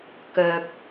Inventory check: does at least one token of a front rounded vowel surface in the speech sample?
yes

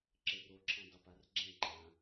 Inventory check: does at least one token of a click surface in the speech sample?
yes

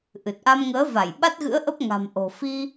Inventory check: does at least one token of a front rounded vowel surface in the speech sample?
no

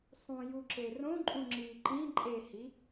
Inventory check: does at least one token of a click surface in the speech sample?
yes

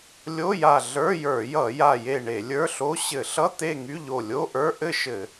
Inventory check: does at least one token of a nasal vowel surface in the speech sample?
no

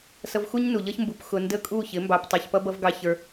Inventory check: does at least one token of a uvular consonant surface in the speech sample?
no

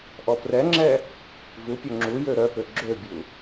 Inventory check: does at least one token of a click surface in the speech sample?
yes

